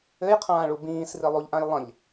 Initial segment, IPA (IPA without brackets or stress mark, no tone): ɘ